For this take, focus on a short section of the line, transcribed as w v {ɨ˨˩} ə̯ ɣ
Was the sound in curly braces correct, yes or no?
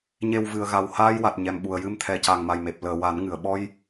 yes